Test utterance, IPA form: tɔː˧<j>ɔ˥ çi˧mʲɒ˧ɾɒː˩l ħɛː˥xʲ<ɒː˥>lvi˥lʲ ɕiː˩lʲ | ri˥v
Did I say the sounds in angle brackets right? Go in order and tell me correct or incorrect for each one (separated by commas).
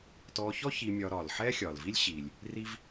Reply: incorrect, incorrect